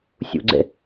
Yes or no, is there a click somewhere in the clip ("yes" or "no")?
yes